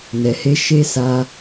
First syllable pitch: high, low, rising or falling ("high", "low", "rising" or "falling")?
low